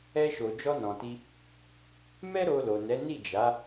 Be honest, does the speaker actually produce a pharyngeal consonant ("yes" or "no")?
no